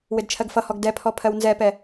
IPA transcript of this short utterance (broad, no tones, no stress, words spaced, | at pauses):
wɪdt͡ʃʰɜɡfʌhɔɡ dɛpʰɔ pʰɜwnzɛpɛ